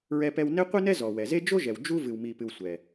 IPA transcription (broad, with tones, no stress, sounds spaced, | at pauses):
ɹ ɛ˥ p ɛ˥ w n e˥ qʷ ɨ˥ n ɛ˥ z ɔ˨ w ɛ˨ z e˥ d͡ʒ o˥ ʒ ɛ˨ w d͡ʒ u˥ v ɨ˨ w m i˨ p ɨ˨ w sʷ ɛ˨